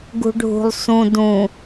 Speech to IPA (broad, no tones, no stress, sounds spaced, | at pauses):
ɡ ṳ ɖʱ ṳ lˠ s ũ d ũ